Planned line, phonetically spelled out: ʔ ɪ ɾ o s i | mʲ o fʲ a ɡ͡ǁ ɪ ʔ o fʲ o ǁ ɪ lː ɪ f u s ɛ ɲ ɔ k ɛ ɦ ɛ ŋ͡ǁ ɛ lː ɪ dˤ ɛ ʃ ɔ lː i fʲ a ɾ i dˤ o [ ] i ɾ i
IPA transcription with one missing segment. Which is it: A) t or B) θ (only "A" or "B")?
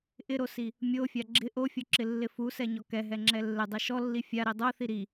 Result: B